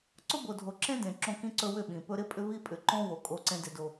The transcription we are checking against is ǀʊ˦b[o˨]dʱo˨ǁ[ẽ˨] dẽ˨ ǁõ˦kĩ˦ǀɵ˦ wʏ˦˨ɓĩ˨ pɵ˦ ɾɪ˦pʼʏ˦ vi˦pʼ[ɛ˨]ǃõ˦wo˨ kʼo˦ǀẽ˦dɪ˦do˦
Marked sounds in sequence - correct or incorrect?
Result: correct, incorrect: ẽ˦, incorrect: ʏ˨

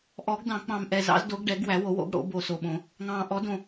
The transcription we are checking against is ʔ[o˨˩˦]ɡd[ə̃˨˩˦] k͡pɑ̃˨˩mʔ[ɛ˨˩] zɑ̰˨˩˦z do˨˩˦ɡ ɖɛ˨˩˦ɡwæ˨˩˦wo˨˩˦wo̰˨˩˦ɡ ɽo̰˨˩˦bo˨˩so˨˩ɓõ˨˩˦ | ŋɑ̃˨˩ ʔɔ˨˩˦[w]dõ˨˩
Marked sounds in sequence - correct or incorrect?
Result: incorrect: ɔ˨˩˦, incorrect: ɑ̃˨˩˦, correct, incorrect: none

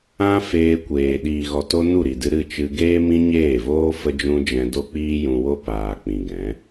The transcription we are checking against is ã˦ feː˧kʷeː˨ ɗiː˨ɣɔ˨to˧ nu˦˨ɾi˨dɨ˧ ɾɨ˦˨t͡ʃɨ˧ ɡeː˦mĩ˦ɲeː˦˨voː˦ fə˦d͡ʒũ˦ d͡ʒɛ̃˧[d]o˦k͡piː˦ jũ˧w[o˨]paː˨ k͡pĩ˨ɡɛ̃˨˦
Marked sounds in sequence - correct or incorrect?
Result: correct, incorrect: o˦

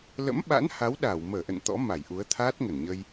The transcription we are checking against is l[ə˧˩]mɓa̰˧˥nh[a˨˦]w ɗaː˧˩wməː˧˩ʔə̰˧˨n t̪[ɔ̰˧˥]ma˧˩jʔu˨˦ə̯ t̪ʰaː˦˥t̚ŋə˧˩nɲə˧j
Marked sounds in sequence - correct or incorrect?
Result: incorrect: ə̰˧˥, correct, correct

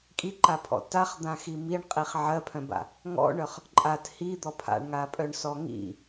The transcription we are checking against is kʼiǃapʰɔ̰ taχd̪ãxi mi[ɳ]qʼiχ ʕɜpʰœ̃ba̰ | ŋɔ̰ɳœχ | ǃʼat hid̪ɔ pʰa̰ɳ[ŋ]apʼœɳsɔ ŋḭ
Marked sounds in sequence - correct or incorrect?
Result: correct, correct

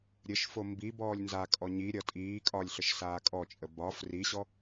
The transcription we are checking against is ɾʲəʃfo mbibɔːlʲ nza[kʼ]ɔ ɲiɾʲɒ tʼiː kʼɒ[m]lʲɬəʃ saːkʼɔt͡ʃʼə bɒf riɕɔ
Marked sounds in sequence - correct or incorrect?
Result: correct, incorrect: none

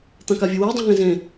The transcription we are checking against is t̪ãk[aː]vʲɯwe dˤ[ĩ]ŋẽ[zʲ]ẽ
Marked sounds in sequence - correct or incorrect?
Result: incorrect: a, correct, incorrect: z

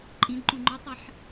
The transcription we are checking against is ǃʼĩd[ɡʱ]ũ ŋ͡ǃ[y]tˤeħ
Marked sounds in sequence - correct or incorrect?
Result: incorrect: ǃ, correct

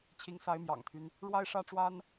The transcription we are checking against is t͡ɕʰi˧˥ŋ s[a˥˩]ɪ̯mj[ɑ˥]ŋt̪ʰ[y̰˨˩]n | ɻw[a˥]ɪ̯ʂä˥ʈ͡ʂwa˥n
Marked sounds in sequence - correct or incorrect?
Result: incorrect: a˧˥, incorrect: ɑ̰˨˩, incorrect: y˦, correct

